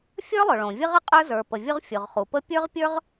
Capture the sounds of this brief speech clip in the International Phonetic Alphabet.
fʲ ə˞˥ lˠ ʊ˩ ɭ õ˩ vʲ ə˥ ʁ ə˥ qʼ ə˞˥ z ə˞˩ p ə˩ vʲ ʊ˥ ʁ fʲ ʊ˩ ʁ χ u˩ p ə˥ pʲ ə˞˥ ʁ pʲ ə˞˥ ʁ

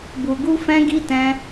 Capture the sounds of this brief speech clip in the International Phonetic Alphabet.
b u˧ ɡ u˦ f ɛ̃˦ ɡ i˦ t ɛ̃˦

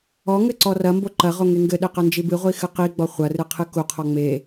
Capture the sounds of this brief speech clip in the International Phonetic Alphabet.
ɔ ŋ ɘ ǀ ɔ r ɐ m b o ǃ ɐ ʁ o ŋ e ŋ ɡ ɘ ɗ e q ɐ n d͡ʒ i b ɨ ʁʷ i x ɨ q i ɡ͡b ɔ χʷ ɐ r ɨ qʰ ɨ k u qʰ ɔ ŋ͡m e

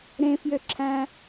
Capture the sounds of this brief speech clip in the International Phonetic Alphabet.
ɾ ẽ f j ø ǁʰ æ̃

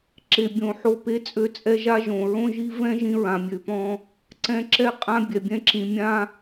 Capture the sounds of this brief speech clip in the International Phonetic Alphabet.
ǁ e˨ bʲ õ˨ ħ o˦ p e˦ t͡sʼ ø˦ t͡sʼ ɛ˦ ʒ a˦ ʒ õ˨ ɹ õ˦ ʒ i˦ v ɛ̃˦ ʒ ĩ˦ ɹ ã˨ mʲ ø˨ p ɔ̃˦ | ǀ ɛ̃˦ ǁ ɛ˦ qʼ ã˦ bʲ ɛ˨ bʲ ɛ̃˦ ǁ ĩ˨ mʲ ã˦

